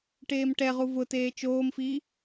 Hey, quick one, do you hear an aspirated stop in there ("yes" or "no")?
no